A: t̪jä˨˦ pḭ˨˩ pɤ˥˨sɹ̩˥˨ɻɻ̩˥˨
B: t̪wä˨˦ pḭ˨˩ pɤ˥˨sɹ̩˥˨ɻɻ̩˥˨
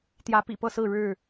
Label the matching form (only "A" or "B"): A